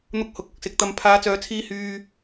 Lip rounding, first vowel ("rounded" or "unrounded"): rounded